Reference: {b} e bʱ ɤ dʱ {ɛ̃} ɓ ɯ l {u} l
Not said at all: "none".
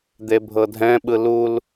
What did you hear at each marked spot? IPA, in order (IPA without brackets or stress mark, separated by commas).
d̪, ɛ̃, u